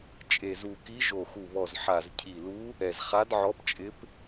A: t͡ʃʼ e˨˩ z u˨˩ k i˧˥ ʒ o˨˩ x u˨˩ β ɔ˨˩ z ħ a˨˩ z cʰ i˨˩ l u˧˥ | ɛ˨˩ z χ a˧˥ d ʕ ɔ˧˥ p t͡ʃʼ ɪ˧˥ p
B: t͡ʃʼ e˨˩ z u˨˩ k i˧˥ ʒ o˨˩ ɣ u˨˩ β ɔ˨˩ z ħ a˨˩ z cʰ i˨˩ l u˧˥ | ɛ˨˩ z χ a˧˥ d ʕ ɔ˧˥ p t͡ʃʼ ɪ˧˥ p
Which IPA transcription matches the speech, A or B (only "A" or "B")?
A